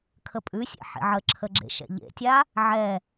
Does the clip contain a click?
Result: yes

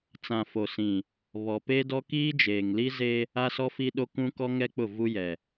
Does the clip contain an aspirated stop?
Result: no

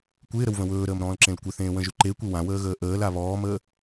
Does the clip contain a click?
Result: yes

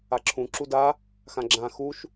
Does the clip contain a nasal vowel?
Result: yes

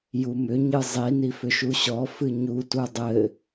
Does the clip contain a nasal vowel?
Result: no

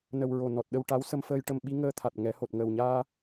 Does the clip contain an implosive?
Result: yes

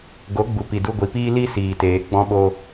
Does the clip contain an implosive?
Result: yes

